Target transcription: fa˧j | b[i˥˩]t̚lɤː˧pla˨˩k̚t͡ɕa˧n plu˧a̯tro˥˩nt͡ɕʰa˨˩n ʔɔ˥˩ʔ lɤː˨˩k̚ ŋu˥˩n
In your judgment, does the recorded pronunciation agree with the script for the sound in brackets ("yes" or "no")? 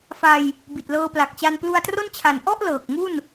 no